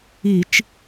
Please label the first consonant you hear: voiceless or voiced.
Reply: voiceless